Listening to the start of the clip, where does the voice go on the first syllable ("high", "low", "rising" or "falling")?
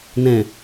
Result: low